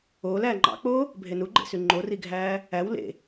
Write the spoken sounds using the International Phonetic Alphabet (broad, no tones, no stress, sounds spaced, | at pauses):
oː l æː ŋ͡ǃ ɑ̰ k͡p oː | bʱ e n u ɡ͡ǃ ḛ s y ŋ͡ǃ o r i ɡʱ æː | æ w l ḛ